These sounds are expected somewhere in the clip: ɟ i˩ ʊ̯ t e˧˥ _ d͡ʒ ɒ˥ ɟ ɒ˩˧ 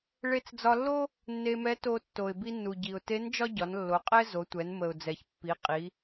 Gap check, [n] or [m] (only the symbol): n